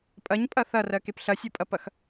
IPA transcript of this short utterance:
pʼ ɐ ɲ pʼ ɐ θ ɐ r ɜ k e p ɬ ɐ sʲ o pʼ ɐ p ɐ x

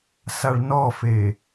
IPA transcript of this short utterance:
s a ɭ n ɔ f e

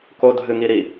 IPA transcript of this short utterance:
k o dʱ ɨ ŋ i ɾ i

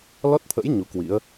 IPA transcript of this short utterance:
l ɔ˦˥ t̚ t̪ʰ ə̰˧˥ j ɲ u˨˦ k w ḭ˧˥ ə̯

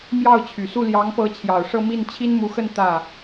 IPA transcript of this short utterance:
m j ɑ˥˩ ʊ̯ t͡ɕʰ y˨˩ s u˥˩ l j ɑ˧˥ ŋ p ɤ˧˥ t͡ɕʰ j ɑ˨˩ ʊ̯ ʂ ɤ˥˧ m i˥˩ n t͡ɕʰ i˥ n m u˧˥ x ə˥˧ n t̪ ä˥˩

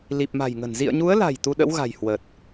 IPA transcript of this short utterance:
l i˨˩ p̚ m a̤˨˩ j ŋ ə̤˨˩ n z ḭ˧˨ ə̯ ɲ u˨˦ ə̯ l a̤˨˩ j t̪ u˧ ɗ ə̰˧˥ w ɣ a̤˨˩ j h w ə˨˩ t̚

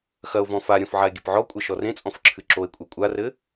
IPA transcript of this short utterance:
x ɐ o̯ v ɔ̃ f a ɾʲ ɔ̃ f ʕ a e̯ ɡʲ ɘ p ʕ ɔ kʷʼ ɐ ʃ ɔ r ẽ t͡sʼ ɔ̃ f ǁʰ ɨ ǁ o e̯ kʷʼ ɛ kʷʼ a r ɘ

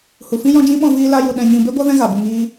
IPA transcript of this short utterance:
h u˨ f ĩ˦ j ɔ̃˦ d͡ʒ ĩ˦ ɓ ɔ̃˧ v iː˧ l a˧ j u˨ ɗ ɛ̃˨ ɲ ĩ˨ b e˦ ɡʷ a˦ v ɛ̃˧ ɣ a˨ b u˨ ŋ iː˧

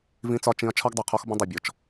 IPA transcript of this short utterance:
v ĩ˦ t͡s ɒ˦ t͡ʃ ĩ˦ ɐ̯ t͡ʃʰ ɒ˦ ɡ dˤ u˨ qʰ ɔ˦ x b ə̃˦ dˤ i˨ bʲ ɔ˨ t͡ʃ

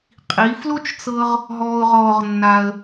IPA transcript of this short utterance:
qʼ i˩˧ f l o˥ t͡ʃ t͡s ɤ˧ ʁ | ɦ ɔː˧ ʊ̯ ʁ ɔː˧ ʁ nː a˧ ə̯

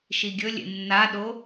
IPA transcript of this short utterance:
ʃ i ɡʲ ɵ lʲ ḛ nː a ɗ o

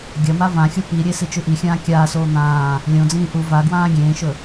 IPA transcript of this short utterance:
ɡʲ ɐ m a v ã xʲ o p i ɾʲ e s i t͡ʃ ʉ ʔ i xʲ ãː kʲ aː s oː n̪ ãː | lʲ õ d͡z ĩː ʔ u v a ɡ w ãː ɡʲ ẽː ʃ ɵ

